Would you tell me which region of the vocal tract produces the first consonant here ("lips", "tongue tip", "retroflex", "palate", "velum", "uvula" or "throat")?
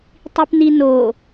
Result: tongue tip